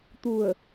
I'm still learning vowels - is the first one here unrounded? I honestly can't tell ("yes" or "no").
no